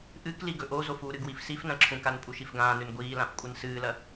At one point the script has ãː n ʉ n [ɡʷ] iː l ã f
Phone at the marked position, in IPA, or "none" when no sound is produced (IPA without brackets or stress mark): ɡʷ